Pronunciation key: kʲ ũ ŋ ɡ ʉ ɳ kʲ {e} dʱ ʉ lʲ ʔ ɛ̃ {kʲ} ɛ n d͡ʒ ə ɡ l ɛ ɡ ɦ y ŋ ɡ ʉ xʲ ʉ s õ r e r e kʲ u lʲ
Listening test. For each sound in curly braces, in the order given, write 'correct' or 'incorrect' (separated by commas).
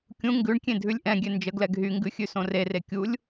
incorrect, incorrect